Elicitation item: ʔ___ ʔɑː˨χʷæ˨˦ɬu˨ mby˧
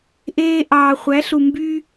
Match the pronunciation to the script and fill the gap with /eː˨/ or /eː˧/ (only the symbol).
eː˧